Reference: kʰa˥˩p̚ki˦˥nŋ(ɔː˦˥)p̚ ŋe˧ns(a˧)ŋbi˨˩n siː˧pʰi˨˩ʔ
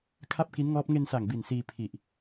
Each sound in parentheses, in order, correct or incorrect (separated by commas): correct, incorrect